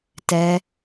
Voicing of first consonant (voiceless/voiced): voiceless